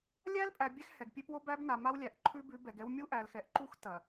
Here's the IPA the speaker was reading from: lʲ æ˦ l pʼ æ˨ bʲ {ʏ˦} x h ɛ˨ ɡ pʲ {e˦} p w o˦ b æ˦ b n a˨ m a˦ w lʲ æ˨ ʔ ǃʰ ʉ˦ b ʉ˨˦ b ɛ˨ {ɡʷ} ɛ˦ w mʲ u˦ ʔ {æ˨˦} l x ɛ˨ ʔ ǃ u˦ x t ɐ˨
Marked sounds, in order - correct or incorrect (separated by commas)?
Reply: incorrect, correct, incorrect, incorrect